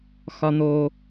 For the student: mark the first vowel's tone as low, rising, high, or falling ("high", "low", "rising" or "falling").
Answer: high